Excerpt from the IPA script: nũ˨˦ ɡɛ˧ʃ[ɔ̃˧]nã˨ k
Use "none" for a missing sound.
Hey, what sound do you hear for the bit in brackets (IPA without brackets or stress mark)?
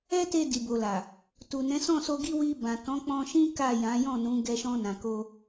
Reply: ɔ̃˧